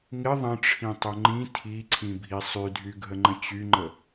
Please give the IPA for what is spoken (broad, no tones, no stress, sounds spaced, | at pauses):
ŋ ɪ ðˤ ə̃ ʈ͡ʂʰ ĩ tˤ o ŋ͡ǃ ĩ tʰ i ǀʰ ĩ bʱ i sˤ y dʱ y ɡʱ ə ŋ͡ǃ ə̃ t͡ɕ y ŋ͡ǃ ə